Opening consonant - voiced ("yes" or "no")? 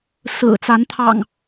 no